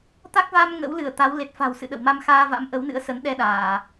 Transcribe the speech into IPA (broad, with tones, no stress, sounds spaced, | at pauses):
t̪ a˦˥ k̚ v a˧ m ŋ ə̰˧˥ w l ɨ˧˩ ə̯ t̪ a˨˦ w l e˨˩ t̚ f a̤˨˩ w s ɨ̰˧˨ ɗ ə̰˧˨ w m a˧ m x aː˧ v a̰˧˥ m ʔ ə˨˦ w n ɨ̰˧˥ ə̯ s ə˨˦ n ɗ ɛ˧ ɗ aː˧˩˨